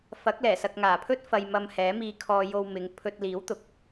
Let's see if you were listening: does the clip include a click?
no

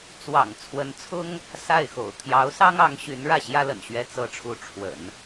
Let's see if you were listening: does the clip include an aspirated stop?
yes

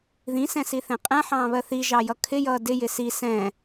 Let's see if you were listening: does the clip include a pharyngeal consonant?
yes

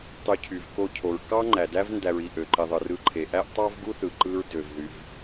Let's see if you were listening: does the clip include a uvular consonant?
no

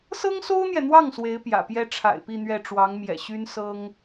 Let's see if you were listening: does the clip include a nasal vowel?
no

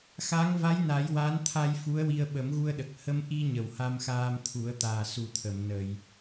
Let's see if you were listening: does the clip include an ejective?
no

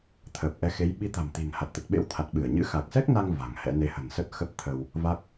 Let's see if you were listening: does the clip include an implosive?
yes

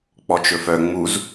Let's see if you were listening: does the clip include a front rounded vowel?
yes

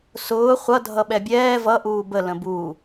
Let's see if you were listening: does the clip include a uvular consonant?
yes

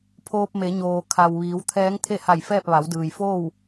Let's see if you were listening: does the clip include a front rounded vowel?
no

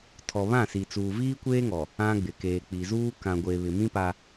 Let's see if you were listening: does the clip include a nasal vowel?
yes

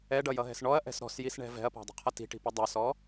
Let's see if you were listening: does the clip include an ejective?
no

